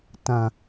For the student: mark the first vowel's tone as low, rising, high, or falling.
low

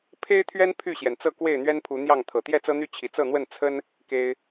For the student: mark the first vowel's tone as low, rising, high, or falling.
high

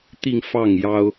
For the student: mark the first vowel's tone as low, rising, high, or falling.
falling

